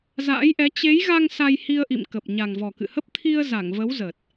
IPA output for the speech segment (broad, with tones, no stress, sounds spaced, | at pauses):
z a̰ː˧˥ j ʔ ɛ˨˦ t͡ɕ e˨˦ j ɣ a˧ ŋ s a˧ j h i˧ ə̯ ʔ ḭ˧˨ m k ə˨˩ p̚ ɲ a˨˩ ŋ v ɔ˨˩ k ɨ̰˧˨ h ə˦˥ p̚ t̪ʰ i˧ ə̯ z a˧˩ ŋ v ə˨˦ w z ə˨˩ t̚